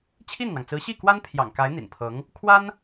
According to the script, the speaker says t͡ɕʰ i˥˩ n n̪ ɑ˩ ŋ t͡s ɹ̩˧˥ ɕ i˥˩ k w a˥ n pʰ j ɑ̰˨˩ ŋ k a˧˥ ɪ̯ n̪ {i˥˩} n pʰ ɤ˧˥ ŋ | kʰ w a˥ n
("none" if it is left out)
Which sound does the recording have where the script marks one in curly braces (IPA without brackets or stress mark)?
ḭ˨˩